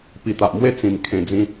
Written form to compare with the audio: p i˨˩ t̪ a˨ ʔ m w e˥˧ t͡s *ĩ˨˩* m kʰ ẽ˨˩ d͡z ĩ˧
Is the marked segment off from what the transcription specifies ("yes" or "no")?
no